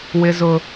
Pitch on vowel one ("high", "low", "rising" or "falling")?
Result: high